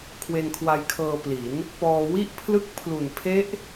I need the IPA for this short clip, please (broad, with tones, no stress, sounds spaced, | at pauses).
kʰ w e˧ n kʰ w a˧ j kʰ ɤː˧ p l i˩˦ n | p ɔː˧ w i˥˩ ʔ pʰ l ɯ˥˩ k̚ pʰ l u˨˩ n pʰ e˦˥ ʔ